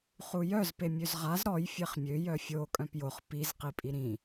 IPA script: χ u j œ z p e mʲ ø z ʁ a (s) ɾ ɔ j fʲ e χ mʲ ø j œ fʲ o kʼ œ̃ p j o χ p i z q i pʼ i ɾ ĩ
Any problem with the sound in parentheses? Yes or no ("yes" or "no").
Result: yes